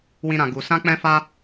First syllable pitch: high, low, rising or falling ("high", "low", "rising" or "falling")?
high